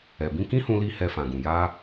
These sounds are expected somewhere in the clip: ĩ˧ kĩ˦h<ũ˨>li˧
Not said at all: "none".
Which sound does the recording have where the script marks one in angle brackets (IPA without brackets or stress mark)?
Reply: ũ˧